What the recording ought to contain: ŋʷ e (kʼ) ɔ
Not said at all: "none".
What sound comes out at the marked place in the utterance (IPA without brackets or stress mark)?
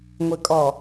kʼ